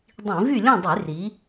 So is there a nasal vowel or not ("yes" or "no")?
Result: yes